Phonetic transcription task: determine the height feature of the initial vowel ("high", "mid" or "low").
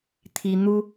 high